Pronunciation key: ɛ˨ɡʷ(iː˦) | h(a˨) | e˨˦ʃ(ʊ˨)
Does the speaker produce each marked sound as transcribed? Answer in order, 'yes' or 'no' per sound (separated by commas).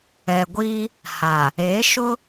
yes, yes, no